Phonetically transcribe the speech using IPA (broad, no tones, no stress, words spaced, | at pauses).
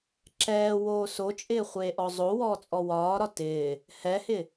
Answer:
ǁɛːwoː sot͡ʃʼɪːχʷeː ʔɔzˤo wɔːt͡sʼɔwɒːɾɒ tɪː | hɛhɪ